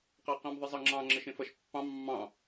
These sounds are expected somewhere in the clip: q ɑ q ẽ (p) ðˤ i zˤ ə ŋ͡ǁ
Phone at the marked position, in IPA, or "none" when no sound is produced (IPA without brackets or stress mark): m